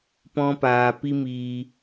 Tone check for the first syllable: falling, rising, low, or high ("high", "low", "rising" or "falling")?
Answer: high